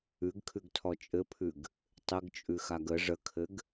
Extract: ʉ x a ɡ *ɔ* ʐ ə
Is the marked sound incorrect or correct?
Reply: incorrect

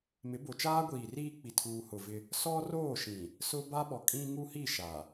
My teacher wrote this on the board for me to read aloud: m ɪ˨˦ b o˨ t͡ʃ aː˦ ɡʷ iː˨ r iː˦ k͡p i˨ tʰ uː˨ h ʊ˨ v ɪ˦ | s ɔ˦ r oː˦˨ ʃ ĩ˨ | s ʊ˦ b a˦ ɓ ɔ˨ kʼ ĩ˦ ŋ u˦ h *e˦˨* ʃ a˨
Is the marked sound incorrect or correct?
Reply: incorrect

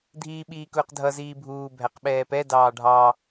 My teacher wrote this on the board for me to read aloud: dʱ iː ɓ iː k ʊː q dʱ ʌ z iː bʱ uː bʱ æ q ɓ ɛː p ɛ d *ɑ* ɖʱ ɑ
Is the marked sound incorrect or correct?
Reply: incorrect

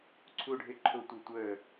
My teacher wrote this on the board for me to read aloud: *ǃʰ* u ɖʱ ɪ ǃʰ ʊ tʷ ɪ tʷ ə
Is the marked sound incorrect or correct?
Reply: incorrect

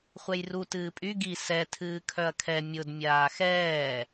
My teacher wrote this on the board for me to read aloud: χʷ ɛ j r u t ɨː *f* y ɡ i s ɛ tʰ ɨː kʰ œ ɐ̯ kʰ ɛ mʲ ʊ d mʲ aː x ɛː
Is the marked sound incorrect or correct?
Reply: incorrect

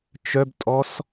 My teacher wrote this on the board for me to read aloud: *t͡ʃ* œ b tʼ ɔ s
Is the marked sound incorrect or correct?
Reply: correct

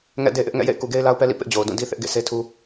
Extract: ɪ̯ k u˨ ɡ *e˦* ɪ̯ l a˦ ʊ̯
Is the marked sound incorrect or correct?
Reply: correct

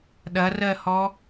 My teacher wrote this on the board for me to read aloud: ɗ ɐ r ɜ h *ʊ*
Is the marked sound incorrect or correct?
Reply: incorrect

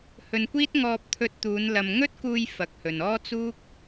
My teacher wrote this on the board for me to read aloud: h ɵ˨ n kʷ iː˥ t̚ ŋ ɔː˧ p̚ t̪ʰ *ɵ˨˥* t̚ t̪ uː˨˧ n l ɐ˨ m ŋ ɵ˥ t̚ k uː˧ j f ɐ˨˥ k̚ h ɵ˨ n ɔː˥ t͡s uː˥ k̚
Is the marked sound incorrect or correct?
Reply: incorrect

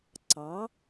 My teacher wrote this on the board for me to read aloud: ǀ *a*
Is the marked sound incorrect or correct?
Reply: incorrect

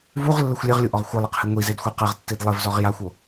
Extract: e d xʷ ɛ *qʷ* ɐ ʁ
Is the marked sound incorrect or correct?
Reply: incorrect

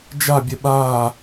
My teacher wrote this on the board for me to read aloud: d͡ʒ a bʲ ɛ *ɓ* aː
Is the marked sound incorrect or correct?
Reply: correct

